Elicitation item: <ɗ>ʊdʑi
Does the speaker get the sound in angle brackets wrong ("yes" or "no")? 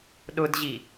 no